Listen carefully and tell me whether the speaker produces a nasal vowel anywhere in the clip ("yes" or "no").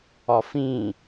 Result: yes